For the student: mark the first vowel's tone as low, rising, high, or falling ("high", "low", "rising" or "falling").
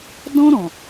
high